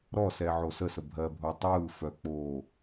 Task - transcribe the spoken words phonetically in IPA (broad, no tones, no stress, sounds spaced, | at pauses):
ɾ ɔ s ɛ ʕ o s ə s ə bʱ ɜ bʱ o tˤ ɯː f œ k͡p oː